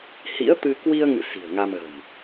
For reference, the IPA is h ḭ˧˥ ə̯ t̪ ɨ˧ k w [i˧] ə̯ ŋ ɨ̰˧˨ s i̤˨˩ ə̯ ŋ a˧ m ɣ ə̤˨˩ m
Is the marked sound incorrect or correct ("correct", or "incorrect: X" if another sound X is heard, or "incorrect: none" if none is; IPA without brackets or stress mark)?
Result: correct